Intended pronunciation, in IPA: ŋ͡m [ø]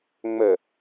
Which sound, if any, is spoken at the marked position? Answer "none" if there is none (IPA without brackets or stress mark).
ə